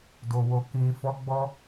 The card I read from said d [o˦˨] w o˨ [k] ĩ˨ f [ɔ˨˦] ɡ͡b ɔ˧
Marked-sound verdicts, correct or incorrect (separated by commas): incorrect, correct, correct